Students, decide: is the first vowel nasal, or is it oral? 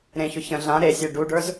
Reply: nasal